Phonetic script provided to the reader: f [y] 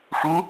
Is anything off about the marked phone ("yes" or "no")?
yes